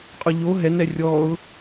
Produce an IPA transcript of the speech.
qʼʊʎo ɦɛnɛ rʲɔʊ̯

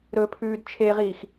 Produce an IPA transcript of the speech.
ɾɵpʰʉːd t͡ʃʰeʁiːx

